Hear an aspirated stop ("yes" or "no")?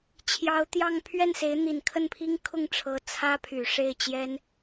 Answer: yes